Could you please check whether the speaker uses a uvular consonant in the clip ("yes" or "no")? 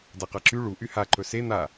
yes